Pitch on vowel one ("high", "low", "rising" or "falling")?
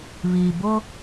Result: low